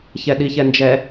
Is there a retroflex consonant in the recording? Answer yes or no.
no